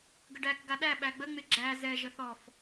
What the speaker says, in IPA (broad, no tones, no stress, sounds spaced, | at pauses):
ɡ ə ɖ æ k ɡ a ɗ æ ɓ æ ɡ͡b ə ŋ͡m ɪ ɡ͡ǁ æ z ɛ ʒ ə θ ɔ f